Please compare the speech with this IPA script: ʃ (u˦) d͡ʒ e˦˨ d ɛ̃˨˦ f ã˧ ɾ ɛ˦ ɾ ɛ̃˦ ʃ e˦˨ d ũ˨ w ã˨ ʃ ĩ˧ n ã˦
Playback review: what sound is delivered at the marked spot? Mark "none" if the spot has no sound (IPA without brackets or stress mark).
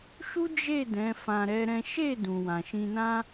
u˦